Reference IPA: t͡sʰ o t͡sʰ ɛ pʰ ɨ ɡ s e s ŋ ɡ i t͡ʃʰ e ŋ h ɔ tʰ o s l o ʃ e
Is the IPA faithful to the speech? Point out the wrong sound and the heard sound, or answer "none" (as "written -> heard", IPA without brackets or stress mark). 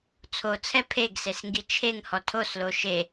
ɨ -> e